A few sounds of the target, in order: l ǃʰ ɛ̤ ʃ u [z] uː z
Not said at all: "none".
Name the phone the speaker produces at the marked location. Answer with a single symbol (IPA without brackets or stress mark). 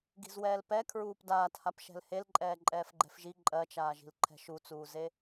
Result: t͡s